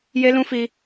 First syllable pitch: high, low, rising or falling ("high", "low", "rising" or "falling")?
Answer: high